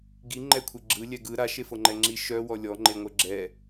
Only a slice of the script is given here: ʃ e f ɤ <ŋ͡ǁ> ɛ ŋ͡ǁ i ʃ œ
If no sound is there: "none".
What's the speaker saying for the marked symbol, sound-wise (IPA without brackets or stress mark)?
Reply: ŋ͡ǃ